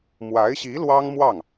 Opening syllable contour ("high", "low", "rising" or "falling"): rising